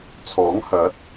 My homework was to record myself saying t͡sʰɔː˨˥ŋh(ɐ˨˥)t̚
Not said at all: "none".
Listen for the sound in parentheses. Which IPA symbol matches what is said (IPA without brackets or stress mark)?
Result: ɐ˨˥